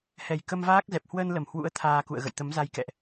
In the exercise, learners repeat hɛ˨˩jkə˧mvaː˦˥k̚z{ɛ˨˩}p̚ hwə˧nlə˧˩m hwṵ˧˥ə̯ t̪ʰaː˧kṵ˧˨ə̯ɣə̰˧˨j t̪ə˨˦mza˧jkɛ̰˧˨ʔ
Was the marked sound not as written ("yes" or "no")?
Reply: no